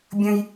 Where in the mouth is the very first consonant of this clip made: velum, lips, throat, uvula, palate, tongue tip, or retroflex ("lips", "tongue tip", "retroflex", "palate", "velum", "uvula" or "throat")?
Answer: lips